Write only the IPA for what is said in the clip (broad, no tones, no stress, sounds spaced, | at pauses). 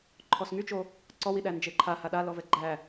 ǃʰ ɔ s ŋ y t͡ʃ o | ǀ ɔ w i ɗ æ n d͡ʒ e ǃʰ a h a ɗ a l ɔ v ɛ ɡ͡ǃ æ